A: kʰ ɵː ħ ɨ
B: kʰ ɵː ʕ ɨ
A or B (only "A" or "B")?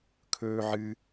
B